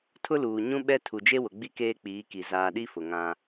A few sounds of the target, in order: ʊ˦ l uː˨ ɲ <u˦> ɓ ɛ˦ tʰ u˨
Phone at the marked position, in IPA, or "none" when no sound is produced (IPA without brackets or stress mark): ũ˦